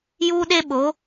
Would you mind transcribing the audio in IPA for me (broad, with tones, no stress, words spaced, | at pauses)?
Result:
juː˦ɗe˦ɓo˨˦